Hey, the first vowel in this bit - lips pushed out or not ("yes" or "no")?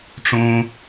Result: yes